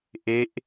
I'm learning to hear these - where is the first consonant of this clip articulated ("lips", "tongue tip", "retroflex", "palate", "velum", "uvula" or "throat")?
throat